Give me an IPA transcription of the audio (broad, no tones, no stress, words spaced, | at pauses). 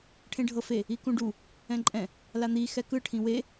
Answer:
ʈʰẽɖʱɤfe | ikũɖu | ɛ̃ǃʼɛ̃ | lan̪i xɛkɯ ʈʰĩwe